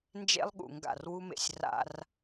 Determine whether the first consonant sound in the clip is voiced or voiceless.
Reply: voiced